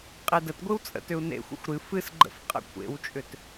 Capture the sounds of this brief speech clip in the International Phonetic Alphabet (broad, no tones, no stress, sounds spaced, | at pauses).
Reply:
qʼ e d ə t ɡʷ ɨ w t͡sʼ ə̰ t ʏ u̯ n ḛ xʷ ə̰ xʷ ɾ ɨ f ɨ s ɡ͡ǃ ə̰ f qʼ ə̰ kʷʰ ḛ w t͡ʃʼ ʏ t